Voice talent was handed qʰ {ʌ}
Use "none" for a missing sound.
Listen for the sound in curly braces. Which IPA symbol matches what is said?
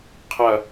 ʌ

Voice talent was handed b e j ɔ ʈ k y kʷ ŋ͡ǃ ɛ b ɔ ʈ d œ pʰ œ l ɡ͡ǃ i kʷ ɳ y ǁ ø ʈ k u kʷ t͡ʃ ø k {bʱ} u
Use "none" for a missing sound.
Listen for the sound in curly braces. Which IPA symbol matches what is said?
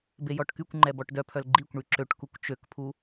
pʰ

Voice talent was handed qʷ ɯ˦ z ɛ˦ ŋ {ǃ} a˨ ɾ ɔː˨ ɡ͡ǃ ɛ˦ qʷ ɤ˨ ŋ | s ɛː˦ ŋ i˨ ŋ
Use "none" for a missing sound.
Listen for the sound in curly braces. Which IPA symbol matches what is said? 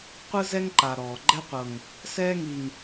ǃ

